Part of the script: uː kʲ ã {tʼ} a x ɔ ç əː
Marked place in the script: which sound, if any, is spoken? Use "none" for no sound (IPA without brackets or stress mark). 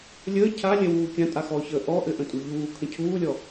tʼ